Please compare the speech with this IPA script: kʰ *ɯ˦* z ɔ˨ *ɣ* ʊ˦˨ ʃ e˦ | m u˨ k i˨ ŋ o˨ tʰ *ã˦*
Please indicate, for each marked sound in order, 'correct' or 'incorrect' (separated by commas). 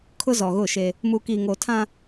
incorrect, correct, correct